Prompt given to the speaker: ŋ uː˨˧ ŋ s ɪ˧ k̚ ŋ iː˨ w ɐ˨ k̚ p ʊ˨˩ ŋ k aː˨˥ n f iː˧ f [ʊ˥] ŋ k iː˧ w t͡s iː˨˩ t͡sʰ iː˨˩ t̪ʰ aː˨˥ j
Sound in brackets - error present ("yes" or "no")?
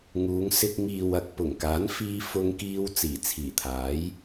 yes